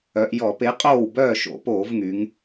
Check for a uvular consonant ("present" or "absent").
present